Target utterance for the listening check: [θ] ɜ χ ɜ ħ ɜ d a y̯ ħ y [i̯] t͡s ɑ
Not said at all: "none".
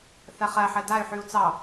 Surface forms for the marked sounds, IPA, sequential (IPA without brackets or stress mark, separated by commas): θ, u̯